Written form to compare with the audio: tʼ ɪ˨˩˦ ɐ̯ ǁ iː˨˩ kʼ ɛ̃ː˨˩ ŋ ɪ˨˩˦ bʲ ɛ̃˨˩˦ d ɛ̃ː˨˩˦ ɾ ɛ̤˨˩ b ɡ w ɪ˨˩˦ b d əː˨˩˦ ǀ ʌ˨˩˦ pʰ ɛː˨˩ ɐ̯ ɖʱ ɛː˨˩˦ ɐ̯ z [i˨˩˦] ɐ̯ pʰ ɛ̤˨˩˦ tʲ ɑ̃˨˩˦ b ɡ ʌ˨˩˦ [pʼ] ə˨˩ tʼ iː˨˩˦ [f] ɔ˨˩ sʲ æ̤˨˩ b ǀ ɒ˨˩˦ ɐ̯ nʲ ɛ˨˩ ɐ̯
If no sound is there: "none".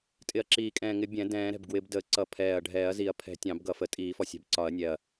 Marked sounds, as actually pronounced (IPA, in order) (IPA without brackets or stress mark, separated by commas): i˨˩˦, f, f